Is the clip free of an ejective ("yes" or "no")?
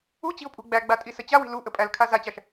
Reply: no